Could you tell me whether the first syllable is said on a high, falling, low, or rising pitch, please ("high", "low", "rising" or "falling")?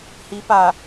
rising